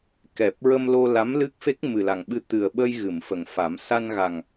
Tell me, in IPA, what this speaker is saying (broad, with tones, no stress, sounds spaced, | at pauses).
k ɛ˨˩ p̚ ɹ ə˧ m l o˧ l a˧˥ m l ɨ˦˥ k̚ f e˦˥ k̚ m ɨ˨˩ l a˨˩ ŋ ɓ ɨ˧ t̪ ɨ˨˩ ə̯ ɓ ə˧ j ɣ ɨ˨˩˨ m f ə˨˩ ŋ f a˨˩˦ m s a˧ n ɣ a˨˩ ŋ